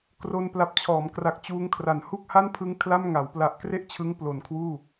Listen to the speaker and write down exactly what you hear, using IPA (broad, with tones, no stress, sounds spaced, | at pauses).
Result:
k r o˧ n p l a˨˩ p̚ t͡ɕʰ ɔː˩˦ m k r a˨˩ k̚ t͡ɕ uː˦˥ ŋ kʰ r a˨˩ n h u˥˩ k̚ h a˥˩ n pʰ ɯ˦˥ ŋ kʰ l a˥˩ m ŋ a˩˦ w p l a˨˩ ʔ k r e˥˩ ʔ t͡ɕʰ ɯ˧ ŋ p l o˨˩ n kʰ w uː˥˩